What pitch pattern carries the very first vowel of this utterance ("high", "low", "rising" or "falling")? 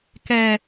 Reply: low